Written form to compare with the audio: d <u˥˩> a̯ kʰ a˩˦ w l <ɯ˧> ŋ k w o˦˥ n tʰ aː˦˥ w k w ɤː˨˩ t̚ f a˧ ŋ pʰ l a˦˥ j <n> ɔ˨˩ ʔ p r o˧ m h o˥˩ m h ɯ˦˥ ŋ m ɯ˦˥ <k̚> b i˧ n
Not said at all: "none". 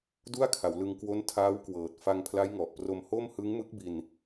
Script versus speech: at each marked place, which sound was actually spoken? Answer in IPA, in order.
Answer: u˥˩, ɯ˧, ŋ, k̚

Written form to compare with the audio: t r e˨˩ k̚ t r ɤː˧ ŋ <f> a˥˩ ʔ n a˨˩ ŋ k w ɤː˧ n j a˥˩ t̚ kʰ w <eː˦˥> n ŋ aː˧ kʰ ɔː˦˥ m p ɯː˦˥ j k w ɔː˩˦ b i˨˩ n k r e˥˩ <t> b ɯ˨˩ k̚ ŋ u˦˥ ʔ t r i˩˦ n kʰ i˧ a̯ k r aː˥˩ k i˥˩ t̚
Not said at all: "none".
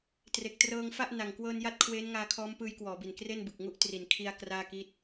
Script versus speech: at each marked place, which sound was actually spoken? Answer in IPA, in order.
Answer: f, eː˦˥, n

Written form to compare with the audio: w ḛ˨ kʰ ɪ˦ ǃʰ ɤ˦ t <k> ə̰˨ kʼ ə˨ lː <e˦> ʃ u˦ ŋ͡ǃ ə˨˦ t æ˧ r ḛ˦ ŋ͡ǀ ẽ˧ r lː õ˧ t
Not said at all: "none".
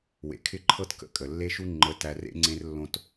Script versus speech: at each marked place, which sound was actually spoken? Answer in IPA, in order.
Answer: k, e˦

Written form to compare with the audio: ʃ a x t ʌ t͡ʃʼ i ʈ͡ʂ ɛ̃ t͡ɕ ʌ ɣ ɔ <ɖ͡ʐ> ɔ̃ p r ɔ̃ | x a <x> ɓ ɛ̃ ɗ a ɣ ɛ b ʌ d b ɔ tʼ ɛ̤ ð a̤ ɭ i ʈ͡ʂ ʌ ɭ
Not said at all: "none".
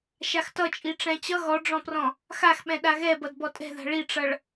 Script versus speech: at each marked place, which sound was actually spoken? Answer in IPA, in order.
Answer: ɖ͡ʐ, x

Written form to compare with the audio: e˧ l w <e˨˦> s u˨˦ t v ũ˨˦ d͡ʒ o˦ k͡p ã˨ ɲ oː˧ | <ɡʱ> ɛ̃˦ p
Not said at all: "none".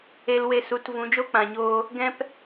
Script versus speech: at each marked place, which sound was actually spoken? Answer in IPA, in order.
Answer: e˧, ɡ

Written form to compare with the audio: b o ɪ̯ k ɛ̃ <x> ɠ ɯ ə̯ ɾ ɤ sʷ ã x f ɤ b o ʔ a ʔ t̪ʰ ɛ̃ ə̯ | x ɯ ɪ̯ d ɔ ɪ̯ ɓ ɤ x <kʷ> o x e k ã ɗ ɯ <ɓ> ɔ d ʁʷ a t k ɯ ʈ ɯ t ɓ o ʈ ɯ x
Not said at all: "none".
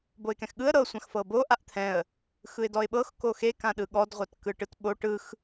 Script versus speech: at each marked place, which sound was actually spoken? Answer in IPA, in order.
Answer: x, k, ɠ

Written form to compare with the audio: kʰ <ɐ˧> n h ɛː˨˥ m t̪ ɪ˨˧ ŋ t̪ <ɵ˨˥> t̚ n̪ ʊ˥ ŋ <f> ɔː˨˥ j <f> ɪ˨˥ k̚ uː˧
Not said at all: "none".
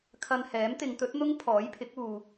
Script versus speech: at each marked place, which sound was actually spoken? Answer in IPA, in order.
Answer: ɐ˧, ɵ˨˥, pʰ, pʰ

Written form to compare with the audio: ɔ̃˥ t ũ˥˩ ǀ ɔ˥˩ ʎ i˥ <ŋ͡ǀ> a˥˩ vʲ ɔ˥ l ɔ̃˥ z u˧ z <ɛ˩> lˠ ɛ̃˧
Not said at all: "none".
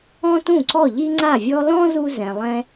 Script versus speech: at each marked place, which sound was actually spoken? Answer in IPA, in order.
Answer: ŋ͡ǀ, ɛ̃˩

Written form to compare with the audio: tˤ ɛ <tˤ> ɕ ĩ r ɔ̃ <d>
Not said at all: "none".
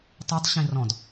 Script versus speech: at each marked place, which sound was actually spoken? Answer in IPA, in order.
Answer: tˤ, d

